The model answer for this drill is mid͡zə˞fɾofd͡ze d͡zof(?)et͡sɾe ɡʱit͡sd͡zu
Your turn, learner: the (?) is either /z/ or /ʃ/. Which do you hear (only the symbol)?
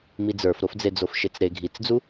ʃ